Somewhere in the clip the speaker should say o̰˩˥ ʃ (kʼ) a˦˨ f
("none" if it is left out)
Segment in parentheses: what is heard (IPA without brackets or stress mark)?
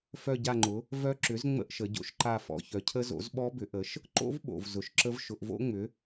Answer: ǃ